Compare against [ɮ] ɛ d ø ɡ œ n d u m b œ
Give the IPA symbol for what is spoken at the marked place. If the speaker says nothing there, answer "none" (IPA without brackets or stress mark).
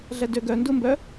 ɮ